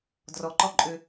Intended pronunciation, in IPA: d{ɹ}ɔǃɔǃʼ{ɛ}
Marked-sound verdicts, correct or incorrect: incorrect: r, incorrect: ø

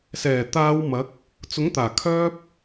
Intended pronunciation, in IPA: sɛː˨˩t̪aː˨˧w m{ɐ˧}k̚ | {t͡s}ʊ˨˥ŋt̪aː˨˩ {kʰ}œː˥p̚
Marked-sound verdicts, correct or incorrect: incorrect: ɐ˨˥, correct, correct

